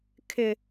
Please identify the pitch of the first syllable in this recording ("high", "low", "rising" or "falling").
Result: low